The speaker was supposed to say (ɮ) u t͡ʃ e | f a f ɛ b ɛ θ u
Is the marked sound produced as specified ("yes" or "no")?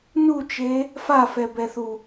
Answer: no